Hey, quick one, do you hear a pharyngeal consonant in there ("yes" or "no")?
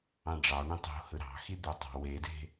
no